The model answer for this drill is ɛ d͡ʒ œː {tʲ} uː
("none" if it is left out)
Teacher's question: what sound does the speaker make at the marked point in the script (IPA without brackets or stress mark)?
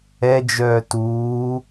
t